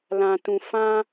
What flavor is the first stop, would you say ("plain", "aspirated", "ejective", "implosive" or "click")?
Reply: plain